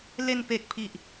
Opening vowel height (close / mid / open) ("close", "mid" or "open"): mid